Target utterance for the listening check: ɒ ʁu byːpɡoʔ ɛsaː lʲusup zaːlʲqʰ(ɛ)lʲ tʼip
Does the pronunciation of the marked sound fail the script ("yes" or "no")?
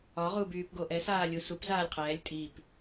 yes